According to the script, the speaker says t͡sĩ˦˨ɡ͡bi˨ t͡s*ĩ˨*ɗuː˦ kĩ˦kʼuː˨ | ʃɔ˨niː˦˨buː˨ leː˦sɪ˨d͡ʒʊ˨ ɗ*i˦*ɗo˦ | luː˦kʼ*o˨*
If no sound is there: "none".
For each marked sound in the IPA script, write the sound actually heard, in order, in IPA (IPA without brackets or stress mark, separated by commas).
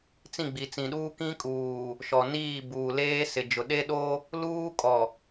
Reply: ĩ˨, e˦, ɔ˨